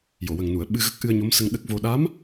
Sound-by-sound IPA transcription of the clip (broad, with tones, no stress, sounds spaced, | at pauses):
j o˨˩˨ w ə˨˩ ŋ n u˨˩˨ ə̯ ɓ ɨ˧ ɣ ə˦˥ k̚ ʔ ɨ˧ ə̯ ɲ o˧˥ m s ə˧ ŋ ɗ ə˦˥ k̚ v o˧ ɗ a˧˥ m